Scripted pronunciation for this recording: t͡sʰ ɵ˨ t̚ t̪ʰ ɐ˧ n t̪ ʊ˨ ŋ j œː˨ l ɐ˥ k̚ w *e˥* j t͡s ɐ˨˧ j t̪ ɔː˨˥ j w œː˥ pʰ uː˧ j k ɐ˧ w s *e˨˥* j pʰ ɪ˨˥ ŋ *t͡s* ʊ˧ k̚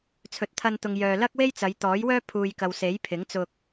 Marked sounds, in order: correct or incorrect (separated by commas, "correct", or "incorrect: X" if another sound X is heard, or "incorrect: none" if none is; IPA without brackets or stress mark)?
correct, correct, correct